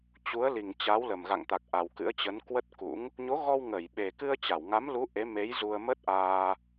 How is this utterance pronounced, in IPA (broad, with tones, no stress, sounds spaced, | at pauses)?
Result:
t͡ɕ u˨˦ ə̯ l i˨˩ ŋ t͡ɕ a˨˦ w l ə˨˩ m ɣ a̰˧˨ ŋ t̪ a˨˩ k̚ ʔ a˨˩ w k ɨ̰˧˥ ə̯ t͡ɕ ə˨˦ n k w ə˦˥ t̚ k ṵ˧˥ ŋ | ɲ o˨˦ ɣ ɔ˧ w ŋ ə˧˩ j ɓ e˨˩ k ɨ˧ ə̯ t͡ɕ a˧˩ w ŋ a˨˦ m l u˨˦ ʔ e˨˦ m e˨˦ j z u˧ ə̯ m ə˦˥ t̚ ʔ aː˧